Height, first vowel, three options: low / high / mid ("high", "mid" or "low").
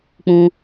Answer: high